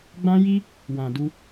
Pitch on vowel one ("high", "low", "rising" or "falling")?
high